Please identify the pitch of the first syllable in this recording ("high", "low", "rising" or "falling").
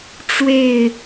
falling